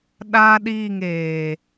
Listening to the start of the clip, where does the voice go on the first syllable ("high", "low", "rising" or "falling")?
high